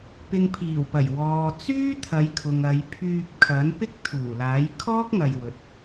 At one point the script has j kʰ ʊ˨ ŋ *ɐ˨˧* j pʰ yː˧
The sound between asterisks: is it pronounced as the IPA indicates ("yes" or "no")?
yes